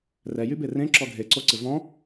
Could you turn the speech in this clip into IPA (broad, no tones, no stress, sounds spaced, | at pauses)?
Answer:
r ɛ j y b e r ẽ ǁ ɔ ɡʱ e ǀ o ǀ ɪ v ɔ̃